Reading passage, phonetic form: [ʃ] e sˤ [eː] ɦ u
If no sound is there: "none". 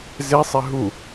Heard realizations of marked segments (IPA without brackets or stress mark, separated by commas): z, e